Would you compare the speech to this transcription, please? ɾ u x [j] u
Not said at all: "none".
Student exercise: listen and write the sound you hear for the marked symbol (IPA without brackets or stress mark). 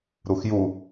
j